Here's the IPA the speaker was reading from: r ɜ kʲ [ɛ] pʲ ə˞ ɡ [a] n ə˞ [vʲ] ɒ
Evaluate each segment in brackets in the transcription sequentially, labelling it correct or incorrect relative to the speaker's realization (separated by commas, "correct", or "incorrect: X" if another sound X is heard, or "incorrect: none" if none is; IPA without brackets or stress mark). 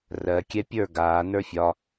correct, incorrect: aː, incorrect: fʲ